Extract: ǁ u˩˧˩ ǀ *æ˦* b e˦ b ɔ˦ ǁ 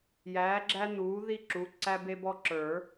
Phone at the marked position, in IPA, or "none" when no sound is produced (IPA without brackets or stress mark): æ˦